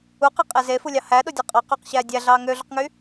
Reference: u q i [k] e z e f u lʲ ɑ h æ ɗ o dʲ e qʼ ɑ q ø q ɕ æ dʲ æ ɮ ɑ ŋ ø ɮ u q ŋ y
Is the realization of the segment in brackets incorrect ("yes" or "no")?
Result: yes